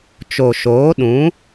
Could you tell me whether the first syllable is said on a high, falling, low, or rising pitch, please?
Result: low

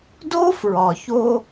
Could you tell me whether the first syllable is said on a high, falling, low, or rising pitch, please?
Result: high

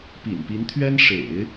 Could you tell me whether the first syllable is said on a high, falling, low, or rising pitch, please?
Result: low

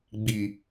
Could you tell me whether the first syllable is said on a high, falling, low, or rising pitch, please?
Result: low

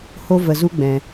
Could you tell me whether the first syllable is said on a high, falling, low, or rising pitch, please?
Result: high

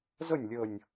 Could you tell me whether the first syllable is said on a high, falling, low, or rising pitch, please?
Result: falling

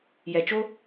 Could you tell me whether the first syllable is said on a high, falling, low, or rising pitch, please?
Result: low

